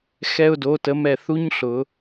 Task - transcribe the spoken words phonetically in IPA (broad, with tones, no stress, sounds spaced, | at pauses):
x ɛ˧ ʊ̯ d o˩˧ t ə˩˧ m ɛ˧˩ θ u˥ ɲ ɬ ʊ˩˧